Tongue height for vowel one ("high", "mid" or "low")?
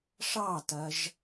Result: low